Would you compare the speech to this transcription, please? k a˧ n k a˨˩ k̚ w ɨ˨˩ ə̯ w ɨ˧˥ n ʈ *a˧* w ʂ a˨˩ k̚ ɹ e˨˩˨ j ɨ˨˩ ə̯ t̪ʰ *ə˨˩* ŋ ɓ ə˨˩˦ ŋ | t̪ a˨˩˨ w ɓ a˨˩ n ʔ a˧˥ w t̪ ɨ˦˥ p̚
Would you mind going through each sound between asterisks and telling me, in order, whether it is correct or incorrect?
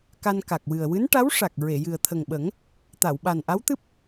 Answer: incorrect: a˧˥, correct

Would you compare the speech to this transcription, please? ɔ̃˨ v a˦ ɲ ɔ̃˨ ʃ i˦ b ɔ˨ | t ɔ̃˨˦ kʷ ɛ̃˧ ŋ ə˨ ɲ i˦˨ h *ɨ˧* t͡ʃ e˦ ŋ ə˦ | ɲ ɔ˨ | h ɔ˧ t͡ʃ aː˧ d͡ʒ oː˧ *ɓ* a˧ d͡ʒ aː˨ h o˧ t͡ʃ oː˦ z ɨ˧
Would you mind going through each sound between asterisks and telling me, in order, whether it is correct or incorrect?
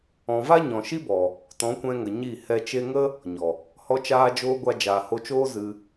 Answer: incorrect: ɛ˧, incorrect: ɡʷ

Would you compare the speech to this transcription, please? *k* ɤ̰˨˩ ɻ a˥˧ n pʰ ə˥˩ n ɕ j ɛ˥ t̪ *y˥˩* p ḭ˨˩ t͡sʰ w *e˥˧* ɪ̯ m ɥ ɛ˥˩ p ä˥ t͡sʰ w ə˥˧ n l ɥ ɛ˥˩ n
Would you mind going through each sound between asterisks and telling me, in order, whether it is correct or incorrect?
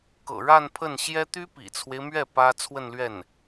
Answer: correct, incorrect: y˥, incorrect: e˦

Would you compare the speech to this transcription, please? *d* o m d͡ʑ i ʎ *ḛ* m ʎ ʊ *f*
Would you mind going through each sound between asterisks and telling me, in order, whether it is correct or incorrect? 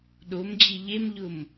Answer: incorrect: ɗ, incorrect: e, incorrect: m

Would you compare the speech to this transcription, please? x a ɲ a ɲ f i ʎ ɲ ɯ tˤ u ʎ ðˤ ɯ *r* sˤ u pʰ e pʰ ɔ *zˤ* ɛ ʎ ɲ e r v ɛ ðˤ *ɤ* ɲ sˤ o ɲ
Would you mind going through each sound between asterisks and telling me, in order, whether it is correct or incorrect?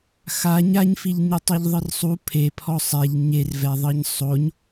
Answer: correct, incorrect: sˤ, correct

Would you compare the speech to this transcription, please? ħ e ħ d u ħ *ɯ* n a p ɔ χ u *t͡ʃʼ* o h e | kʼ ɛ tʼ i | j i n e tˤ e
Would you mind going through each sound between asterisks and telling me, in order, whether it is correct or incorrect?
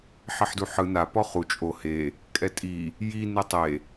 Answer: correct, correct

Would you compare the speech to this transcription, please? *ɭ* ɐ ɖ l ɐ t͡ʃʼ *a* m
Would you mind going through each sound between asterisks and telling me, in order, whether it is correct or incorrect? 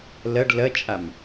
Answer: incorrect: l, correct

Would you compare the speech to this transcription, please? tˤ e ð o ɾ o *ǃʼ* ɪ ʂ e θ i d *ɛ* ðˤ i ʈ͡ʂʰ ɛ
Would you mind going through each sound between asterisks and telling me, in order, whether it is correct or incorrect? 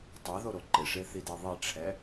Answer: incorrect: ǃ, incorrect: e

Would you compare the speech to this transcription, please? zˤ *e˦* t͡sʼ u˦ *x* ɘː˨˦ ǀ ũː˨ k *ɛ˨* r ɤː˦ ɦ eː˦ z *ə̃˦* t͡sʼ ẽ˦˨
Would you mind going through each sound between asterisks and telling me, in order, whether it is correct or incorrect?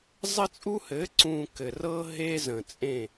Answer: incorrect: ɘ˦, incorrect: h, incorrect: ɘ˨, incorrect: ə̃˨

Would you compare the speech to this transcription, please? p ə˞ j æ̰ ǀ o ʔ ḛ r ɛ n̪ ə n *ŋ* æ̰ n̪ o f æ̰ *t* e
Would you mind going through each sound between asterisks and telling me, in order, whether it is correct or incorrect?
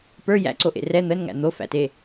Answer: correct, correct

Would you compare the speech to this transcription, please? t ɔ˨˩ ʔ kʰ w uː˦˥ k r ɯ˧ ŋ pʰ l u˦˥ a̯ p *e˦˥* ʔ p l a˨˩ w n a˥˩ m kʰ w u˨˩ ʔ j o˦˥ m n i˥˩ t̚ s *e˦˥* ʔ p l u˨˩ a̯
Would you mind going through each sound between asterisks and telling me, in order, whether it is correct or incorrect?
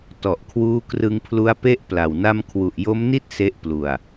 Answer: correct, correct

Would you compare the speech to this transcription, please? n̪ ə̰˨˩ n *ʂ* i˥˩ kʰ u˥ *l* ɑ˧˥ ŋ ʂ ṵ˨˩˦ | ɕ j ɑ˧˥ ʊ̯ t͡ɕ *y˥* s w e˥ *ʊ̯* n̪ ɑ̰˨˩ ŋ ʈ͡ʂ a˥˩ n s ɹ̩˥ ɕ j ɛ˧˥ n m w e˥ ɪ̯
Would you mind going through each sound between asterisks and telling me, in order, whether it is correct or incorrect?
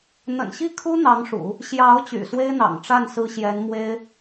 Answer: incorrect: ɕ, incorrect: n̪, incorrect: y̰˨˩, incorrect: ɪ̯

